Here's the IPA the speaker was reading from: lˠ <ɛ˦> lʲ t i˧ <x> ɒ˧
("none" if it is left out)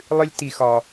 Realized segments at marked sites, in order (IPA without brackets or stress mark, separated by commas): ɨ˦, x